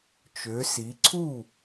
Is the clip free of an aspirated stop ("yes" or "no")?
no